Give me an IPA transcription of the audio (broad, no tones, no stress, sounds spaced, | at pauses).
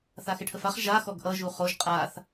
θ a x ɪ ʈʰ ə f a χ ʒ a x ɔ ɡ ʔ ʌ ʒ u χ o ʒ qʼ a θ